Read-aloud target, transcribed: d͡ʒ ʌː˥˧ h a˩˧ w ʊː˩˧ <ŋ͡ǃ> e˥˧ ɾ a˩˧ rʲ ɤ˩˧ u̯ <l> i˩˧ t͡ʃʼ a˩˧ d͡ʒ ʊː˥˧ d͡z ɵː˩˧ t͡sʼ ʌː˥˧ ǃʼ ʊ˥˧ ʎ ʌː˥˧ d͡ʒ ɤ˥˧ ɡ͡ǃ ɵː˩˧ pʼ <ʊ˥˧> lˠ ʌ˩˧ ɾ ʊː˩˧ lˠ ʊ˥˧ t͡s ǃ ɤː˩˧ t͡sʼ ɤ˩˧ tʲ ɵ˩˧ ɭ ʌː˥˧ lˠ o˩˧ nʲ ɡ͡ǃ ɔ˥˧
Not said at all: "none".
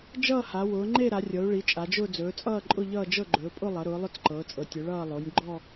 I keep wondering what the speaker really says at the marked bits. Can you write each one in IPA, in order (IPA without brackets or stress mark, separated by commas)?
ŋ͡ǃ, ɭ, ʊ˥˧